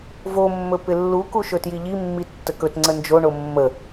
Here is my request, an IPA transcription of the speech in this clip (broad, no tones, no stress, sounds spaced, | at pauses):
v o mː ɵ p ɪ lː u k u ʃ ɵ t j i ʎ i mː i tː ə k ɵ t ŋ͡ǀ ə n d͡ʒ o ɳ o mː ə